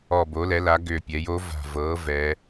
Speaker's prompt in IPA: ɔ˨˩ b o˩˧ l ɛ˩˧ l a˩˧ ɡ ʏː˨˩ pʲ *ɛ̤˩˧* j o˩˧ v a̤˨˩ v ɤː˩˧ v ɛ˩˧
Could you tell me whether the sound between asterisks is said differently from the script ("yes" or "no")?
yes